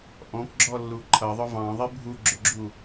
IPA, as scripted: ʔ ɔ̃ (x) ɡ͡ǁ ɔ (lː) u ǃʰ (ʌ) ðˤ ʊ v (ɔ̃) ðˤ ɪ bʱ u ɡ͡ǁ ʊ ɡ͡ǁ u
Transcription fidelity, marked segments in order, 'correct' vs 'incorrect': incorrect: k, correct, correct, incorrect: ɑ̃

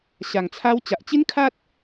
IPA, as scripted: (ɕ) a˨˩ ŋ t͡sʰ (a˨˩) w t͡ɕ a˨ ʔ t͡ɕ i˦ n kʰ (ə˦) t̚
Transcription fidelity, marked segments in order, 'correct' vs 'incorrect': correct, incorrect: a˧, incorrect: a˦

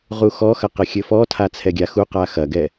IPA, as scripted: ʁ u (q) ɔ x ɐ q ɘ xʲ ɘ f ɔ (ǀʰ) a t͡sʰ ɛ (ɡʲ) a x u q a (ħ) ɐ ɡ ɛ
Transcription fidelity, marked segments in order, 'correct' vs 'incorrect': incorrect: x, incorrect: tʰ, correct, incorrect: x

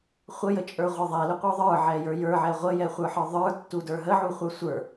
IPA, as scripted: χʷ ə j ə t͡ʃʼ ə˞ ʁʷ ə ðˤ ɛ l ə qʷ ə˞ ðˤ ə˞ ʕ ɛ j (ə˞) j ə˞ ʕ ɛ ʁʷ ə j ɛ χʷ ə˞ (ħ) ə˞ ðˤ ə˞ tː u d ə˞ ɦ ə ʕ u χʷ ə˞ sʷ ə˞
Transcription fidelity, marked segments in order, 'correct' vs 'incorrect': correct, correct

